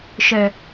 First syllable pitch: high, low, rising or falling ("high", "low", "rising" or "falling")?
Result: low